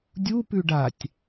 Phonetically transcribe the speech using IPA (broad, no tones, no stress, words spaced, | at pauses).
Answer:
dʲupʉ ɖatʲ